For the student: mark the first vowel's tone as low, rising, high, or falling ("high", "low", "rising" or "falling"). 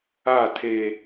falling